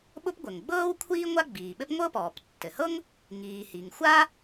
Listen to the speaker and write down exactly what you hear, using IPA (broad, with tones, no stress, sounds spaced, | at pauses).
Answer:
ɓ ʊ˥ p ɡʷ ɘ˩ ŋ ɡ͡b ɤː˥ w kʷʰ iː˥ ŋʷ a˥ ɡ͡b iː˩ ɓ ɘ˥ p ŋʷ ɤ˥ p ɔː˩ p tː ɘ˩ h ɤ˥ ŋ | ŋ iː˩ h i˩ ŋ xʷ a˥